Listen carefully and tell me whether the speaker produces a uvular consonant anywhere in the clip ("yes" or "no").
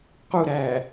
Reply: yes